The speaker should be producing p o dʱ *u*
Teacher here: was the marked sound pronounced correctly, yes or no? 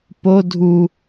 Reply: yes